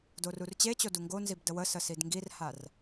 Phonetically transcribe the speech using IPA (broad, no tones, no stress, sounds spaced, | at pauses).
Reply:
d o r u r t͡ɕ e t͡ɕ o d u ŋ ɡ o n z i b d ə w ə s ə s i d ŋ ɡ i r h a r